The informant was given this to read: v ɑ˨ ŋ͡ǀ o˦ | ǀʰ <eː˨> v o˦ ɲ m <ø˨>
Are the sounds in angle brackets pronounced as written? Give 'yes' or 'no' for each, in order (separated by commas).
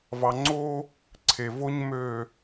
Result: no, yes